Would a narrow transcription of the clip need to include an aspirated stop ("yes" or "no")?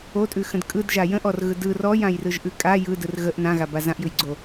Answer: no